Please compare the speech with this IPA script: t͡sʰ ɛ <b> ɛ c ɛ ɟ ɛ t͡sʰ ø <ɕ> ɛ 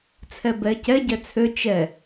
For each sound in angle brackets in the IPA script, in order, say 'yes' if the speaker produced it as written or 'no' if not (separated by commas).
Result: yes, no